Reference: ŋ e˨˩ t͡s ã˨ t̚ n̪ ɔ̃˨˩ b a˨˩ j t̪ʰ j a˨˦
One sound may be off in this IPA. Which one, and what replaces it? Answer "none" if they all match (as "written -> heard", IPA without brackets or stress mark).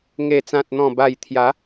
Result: none